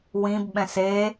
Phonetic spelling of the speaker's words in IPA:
w ĩ b ɓ ɛ̃ s e

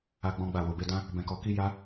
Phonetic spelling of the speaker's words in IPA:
a˦ ɡ͡b ɔ̃˦ ɡ͡b a˦˨ w o˨ b e˧ d ã˦ | b ɛ̃˧ k ɔ˧ k i˦ j a˦

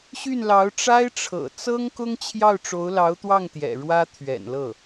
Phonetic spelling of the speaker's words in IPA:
ɕ y˥˩ n l ɑ˧˥ ʊ̯ ʈ͡ʂ a˥ ɪ̯ ʈ͡ʂʰ ɤ̰˨˩ t͡s ɤ˥ ŋ k ʊ˥ ŋ t͡ɕʰ j ɑ˥˩ ʊ̯ ʈ͡ʂ o˧˥ ʊ̯ l ɑ˧˥ ʊ̯ t̪ w ɑ˥˩ ŋ t̪ j ɛ̰˨˩ ɻ w ä˥ t̪ʰ ɥ ɛ̰˨˩ n l ɤ˥˩

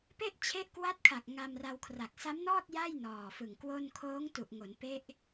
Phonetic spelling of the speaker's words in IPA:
p e˥˩ ʔ t͡ɕʰ e˦˥ ʔ k w a˦˥ t̚ kʰ a˨˩ k̚ ŋ a˧ m r a˧ w kʰ r a˨˩ k̚ s a˦˥ m n ɔː˥˩ t̚ j a˥˩ j n ɔː˨˩ f ɯ˨˩ ŋ k w o˥˩ n kʰ oː˦˥ ŋ t u˨˩ ʔ ŋ o˩˦ n p e˦˥ ʔ

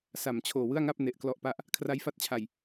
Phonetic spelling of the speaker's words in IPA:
s a˨˩ m t͡ɕʰ oː˨˩ w ɯ˥˩ a̯ ŋ a˥˩ p̚ n e˨˩ ʔ k l ɔ˦˥ ʔ p a˥˩ ʔ | kʰ r a˦˥ j f a˦˥ t̚ t͡ɕʰ a˨˩ j

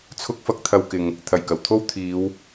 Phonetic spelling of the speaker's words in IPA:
t͡sʰ ʊ˥ k̚ f ɐ˥ k̚ t̪ʰ ɐ˧ w k ɪ˨ ŋ | t̪ʰ ɐ˨˩ j k ɐ˨˩ w t̪ʰ o˥ w t̪ʰ iː˨˧ w

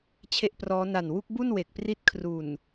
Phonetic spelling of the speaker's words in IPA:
t͡ɕʰ e˥˩ ʔ p r ɔː˦˥ n a˨˩ n w u˦˥ k̚ b u˥˩ n w e˨˩ k̚ p r i˦˥ t̚ kʰ r u˨˩ n

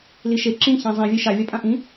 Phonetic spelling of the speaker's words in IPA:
l i ʃ e ǁ ĩ ç ã zˤ ĩ vʲ e ʃ a vʲ a pʼ ã ʔ ĩ

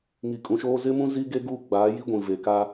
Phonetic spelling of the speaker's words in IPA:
ŋ i˨ kʼ ũ˨ ʃ oː˦ z ɪ˦ m ũ˦ z i˦ ɡ e˦ ɡ uː˦ ɡ͡b aː˨˦ j i˦ ɡʷ ĩ˨ v e˨ k a˦

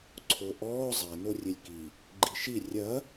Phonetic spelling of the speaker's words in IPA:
ǀʰ o ʔ ɔː zˤ ɛ n o rʲ e lʲ k i | ɡ͡ǃ i ʃ i rʲ ɐ

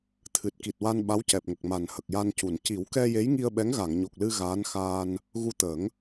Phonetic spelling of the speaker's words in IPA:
t̪ʰ ɨ˨˩ t̚ k i˨˩ t̚ w a˧ n ɓ a˧˥ w c ɛ˨˩ p̚ ŋ ə˨˩ k̚ m a˨˩ n h ə˨˩ k̚ j a˧ n c u˨˩˨ n c i˨˩˦ w k ɛ˧ j e˧˥ j ŋ i˧ ə̯ ɓ ɛ˧˥ ŋ ɣ a˨˩˨ ŋ ɲ o˨˩ k̚ l ɨ˧ ɣ aː˧˥ n x aː˧ n | ɣ u˧ t̪ əː˨˩˦ ŋ

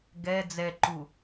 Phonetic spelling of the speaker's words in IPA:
ɡ ɛ d͡z ɛ ǃ u

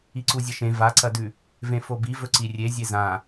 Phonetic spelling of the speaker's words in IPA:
i ǀ u zʲ ɐ ʃ ẽ v a ǀ ɐ d ʉ | v ẽ f o b i v ɵ ǀ i rʲ e zʲ e z ã

